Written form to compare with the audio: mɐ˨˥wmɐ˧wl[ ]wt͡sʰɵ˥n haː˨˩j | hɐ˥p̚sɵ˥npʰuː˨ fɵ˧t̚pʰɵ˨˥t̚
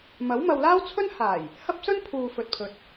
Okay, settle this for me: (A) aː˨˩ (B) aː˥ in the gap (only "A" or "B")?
B